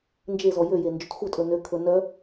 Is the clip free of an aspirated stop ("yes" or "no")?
no